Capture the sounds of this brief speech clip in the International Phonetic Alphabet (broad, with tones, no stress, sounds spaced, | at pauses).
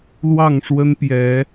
l w ɑ˥˨ ŋ ʂ w ə˦ n p j ɛ˨˦